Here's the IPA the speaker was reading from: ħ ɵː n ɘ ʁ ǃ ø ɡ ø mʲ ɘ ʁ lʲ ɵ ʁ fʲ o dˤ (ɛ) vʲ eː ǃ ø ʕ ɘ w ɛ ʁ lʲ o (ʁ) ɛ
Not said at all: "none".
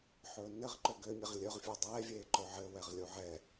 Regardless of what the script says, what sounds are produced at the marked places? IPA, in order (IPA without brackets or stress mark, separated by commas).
ɛː, ʕ